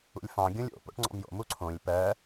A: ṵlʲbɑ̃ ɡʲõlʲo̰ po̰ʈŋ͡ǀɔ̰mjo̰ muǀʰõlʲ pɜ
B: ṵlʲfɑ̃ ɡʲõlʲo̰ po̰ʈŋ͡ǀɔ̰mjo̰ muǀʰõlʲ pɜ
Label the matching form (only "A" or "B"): B